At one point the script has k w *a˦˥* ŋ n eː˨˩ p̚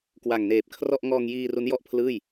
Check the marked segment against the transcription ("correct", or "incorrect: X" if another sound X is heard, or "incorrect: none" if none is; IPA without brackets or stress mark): incorrect: a˨˩